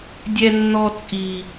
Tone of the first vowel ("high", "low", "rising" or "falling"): high